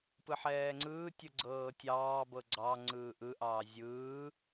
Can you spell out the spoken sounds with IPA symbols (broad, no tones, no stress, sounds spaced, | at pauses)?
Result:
p ɯ ħ ɛː ŋ͡ǀ ɯː tʲ ɯ ɡ͡ǀ ɤː tʲ ɑː b ɤ ɡ͡ǀ ɑ ŋ͡ǀ ɯː ʔ ɯ ʔ ɑː zʲ ɯː